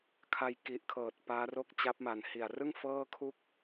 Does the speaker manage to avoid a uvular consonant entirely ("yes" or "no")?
yes